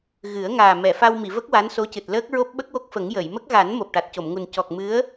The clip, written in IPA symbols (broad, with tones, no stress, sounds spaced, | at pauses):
ɣ ɨ˨˩˦ ə̯ ŋ aː˨˩ m ɛ˨˩˨ f a˧ w m i˨˩˨ v ə˦˥ k̚ w a˧˥ n s o˧˥ c ɨ˨˩ t̚ l əː˦˥ k̚ ɹ o˦˥ p̚ ɓ ə˦˥ k̚ w o˦˥ k̚ f ə˨˩˦ ŋ j ə˨˩˨ j m ə˦˥ k̚ ɣ a˨˩˦ n m o˨˩ p̚ ʈ a˨˩ t̚ c o˨˩˨ m ŋ u˨˩ n c ɔ˨˩ k̚ m ɨ˧˥ ə̯